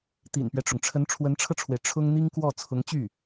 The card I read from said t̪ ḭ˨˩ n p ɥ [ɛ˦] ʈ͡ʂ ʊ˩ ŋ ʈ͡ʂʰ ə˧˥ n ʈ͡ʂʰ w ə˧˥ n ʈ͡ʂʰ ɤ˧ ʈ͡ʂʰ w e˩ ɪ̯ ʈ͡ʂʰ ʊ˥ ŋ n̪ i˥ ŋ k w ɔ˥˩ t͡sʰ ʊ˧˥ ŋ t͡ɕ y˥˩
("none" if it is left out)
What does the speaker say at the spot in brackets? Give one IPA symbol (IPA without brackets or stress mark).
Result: ɛ˦